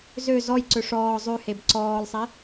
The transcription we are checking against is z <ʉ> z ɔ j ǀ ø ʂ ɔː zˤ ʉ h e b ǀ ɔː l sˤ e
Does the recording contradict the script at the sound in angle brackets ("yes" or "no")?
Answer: yes